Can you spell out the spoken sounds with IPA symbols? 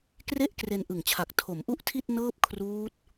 k r e˥˩ ʔ k r e˧ n ʔ ɯ˨˩ ŋ t͡ɕʰ a˨˩ k̚ tʰ o˩˦ m ʔ u˥˩ ʔ tʰ i˥˩ t̚ n ɤː˥˩ p̚ kʰ r uː˦˥ t̚

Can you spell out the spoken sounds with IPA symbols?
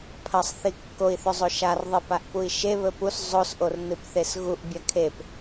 pʰ ɐ sˤ θ i kː o i̯ θ ɵ zˤ o ʃ a r ðˤ i p a ʔ p u i̯ ʃ e β ɵ p u s zˤ o s ʔ o r n ɨ p θ e s ɣ u ʔ bʲ a kʰ e p

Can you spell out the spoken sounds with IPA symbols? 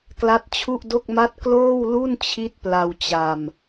k l a˦˥ t̚ t͡ɕʰ u˥˩ ʔ d o˥˩ k̚ m a˥˩ t̚ k l oː˥˩ w l u˥˩ n t͡ɕʰ i˦˥ t̚ p l a˧ w t͡ɕ a˧ m

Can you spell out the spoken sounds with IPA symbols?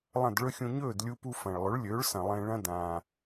lˠ ɐ̃˥˩ d ɭ ɵ˥ xʲ ũ˧ ɲ ɵː˥˩ d lʲ u˧ p u˧ f ɐ̃˩ ɭ lˠ ɵ˩˥ ɭ lʲ ɵː˩˥ ɭ s ɐ̃˩ lˠ ẽ˧ ɭ ɐ̃˥ d ãː˩

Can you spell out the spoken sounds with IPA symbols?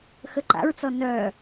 x ə ǃ a̰ ɹ t͡s ɔ n œ

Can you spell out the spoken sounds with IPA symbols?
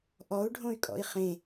ʔ ɔ u̯ ɖʱ õ y̯ kʼ ɔ̰ i̯ χ ẽ

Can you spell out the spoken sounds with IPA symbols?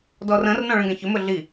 d ɔ r ə̃ r n ɔ̃ ɭ ə̃ ɡ ɛ̃ ç ɵ m ɵ ɮ i

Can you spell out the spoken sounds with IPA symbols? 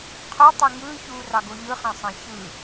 qʰ o tˤ ø ŋ ɯː ç uː r ɑ ɡ o ʎ ɯ χ ɑ̃ sˤ ɑ̃ ç ɯ

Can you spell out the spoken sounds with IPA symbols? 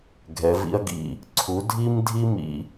ɡʱ ɛ˨˦ v ḭ˥ ɐ̯ ɡ ḭ˦˨ | ǀʰ u˨˦ dʱ i˥ m dʱ i˥ m ḭ˥

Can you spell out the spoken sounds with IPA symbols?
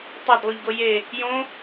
tˤ a d lˠ u ʎ ɡ o j e | j õ

